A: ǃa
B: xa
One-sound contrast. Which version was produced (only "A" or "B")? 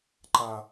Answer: A